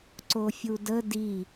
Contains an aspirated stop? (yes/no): no